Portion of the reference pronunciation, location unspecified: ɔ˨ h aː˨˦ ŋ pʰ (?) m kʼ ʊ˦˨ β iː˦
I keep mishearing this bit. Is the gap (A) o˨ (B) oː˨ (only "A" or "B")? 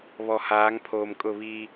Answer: B